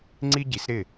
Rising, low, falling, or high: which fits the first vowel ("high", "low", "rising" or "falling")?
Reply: high